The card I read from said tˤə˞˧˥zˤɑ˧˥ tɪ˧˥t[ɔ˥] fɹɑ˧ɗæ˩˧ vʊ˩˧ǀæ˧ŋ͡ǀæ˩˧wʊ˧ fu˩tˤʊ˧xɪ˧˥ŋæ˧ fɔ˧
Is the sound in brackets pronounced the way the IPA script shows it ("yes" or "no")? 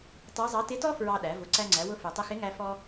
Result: yes